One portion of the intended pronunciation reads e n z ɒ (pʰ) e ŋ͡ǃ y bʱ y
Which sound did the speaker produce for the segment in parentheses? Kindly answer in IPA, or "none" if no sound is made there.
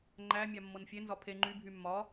pʰ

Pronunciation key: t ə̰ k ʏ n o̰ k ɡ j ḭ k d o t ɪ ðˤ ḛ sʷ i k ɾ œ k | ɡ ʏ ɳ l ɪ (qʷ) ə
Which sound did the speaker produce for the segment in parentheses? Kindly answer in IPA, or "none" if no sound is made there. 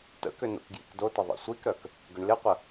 qʷ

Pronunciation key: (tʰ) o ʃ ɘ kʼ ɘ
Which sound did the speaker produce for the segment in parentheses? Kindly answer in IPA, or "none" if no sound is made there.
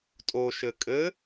tʼ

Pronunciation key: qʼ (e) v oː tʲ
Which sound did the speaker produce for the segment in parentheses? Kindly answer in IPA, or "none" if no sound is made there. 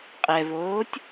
ɛ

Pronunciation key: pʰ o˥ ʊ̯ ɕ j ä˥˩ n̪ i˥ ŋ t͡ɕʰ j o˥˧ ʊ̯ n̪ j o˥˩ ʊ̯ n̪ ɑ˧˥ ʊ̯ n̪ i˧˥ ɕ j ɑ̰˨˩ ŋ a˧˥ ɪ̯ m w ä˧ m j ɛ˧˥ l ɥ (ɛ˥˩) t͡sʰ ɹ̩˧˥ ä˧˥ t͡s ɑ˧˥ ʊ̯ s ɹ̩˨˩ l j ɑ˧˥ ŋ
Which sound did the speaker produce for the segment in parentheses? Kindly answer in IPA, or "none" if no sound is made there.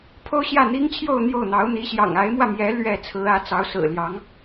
ɛ˥˩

